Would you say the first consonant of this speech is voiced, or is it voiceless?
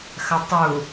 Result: voiceless